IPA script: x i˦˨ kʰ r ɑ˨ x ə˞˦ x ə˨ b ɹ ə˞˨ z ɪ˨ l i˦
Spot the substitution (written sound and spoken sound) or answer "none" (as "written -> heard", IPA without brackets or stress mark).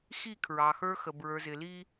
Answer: r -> ɹ